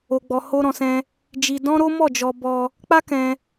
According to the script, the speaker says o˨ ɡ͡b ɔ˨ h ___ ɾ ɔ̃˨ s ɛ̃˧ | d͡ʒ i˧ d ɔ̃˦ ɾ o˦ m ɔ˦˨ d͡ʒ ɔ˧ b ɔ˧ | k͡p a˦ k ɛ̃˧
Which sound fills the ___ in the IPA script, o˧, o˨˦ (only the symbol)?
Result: o˧